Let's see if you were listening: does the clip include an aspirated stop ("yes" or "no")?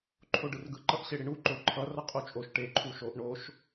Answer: yes